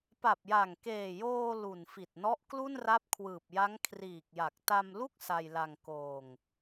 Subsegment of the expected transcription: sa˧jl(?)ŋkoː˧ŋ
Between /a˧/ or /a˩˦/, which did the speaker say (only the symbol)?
a˧